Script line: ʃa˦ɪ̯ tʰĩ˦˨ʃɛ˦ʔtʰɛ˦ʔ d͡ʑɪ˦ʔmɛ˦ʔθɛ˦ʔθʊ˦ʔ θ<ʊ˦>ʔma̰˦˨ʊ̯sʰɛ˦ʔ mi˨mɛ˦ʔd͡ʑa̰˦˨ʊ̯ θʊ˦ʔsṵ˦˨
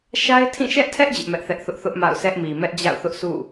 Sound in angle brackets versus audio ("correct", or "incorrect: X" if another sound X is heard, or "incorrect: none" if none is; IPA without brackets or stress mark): correct